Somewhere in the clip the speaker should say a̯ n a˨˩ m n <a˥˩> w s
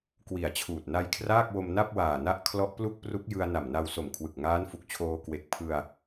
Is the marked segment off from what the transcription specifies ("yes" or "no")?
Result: yes